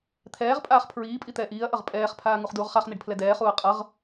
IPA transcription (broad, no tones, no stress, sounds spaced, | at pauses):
t̪ʰ ɛː ʁ pʼ aː χ pʰ ɹ iː pʼ i t̪ ɛː ʔ iː ɐ̯ ʔ ʌ ʁ pʼ ɛː χ pʰ aː ŋ u χ d uː ʁ χ a χ n̪ i ɖ pʰ l ɛ d ɛː χ uː ɐ̯ qʼ ʌ ʁ